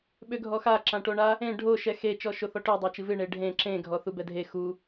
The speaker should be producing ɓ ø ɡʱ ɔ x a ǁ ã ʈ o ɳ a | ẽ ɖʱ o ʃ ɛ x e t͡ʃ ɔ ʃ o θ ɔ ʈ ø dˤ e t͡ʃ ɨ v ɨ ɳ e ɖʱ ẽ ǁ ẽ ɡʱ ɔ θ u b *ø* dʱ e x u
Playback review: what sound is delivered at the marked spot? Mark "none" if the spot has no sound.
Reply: ɛ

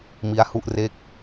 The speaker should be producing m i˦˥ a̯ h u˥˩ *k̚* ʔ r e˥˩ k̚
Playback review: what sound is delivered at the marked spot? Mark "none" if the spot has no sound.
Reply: none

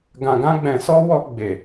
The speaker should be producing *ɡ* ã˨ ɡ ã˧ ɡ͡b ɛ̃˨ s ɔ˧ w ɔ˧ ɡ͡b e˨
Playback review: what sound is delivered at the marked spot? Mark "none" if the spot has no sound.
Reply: ɡ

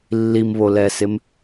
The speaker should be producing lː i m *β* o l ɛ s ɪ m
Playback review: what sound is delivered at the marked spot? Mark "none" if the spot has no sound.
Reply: β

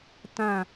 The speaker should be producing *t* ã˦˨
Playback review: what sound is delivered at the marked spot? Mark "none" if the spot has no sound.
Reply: t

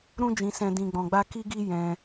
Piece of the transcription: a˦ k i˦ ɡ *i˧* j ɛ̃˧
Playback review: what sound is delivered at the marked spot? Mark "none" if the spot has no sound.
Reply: i˦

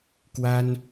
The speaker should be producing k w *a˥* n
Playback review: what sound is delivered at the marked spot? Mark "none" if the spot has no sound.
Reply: a˥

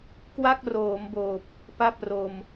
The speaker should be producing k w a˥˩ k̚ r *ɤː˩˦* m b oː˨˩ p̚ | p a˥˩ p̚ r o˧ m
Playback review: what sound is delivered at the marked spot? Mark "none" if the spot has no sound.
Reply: oː˩˦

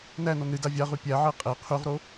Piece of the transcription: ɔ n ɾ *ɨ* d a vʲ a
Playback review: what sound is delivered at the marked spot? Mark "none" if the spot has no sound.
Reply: ɨ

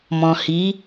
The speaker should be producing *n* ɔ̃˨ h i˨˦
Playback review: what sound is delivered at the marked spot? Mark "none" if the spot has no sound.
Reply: m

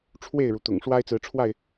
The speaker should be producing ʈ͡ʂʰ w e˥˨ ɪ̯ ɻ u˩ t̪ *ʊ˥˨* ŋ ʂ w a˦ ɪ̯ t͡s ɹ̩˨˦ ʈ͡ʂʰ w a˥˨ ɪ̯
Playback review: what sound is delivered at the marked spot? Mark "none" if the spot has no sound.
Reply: ʊ̰˨˩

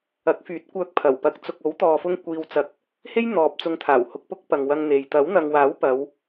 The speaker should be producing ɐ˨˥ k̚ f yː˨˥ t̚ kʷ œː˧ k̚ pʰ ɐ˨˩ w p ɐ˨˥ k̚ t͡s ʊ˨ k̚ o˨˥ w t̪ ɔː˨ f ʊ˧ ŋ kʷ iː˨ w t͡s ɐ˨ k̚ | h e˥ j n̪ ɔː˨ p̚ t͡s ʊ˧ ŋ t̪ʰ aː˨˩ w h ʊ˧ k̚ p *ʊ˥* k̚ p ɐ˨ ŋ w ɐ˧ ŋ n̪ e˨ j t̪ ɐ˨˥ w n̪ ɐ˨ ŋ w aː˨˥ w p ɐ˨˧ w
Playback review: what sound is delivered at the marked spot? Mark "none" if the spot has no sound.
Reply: ʊ˥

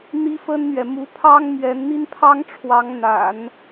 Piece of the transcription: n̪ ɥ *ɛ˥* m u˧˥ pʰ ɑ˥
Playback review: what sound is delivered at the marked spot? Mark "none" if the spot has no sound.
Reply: ɛ˨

